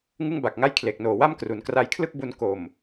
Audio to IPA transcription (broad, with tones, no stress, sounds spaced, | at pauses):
ŋ ɯ˥˩ ŋ b a˨˩ k̚ ŋ a˥˩ j kʰ l e˨˩ k̚ n oː˨˩ w a˥˩ m k r u˩˦ n k r a˧ j kʰ l ɯ˥˩ k̚ b u˧ n k o˨˩ m